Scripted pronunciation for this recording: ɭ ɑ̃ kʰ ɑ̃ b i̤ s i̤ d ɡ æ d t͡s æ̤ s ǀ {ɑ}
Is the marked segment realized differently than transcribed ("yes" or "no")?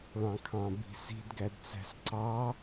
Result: no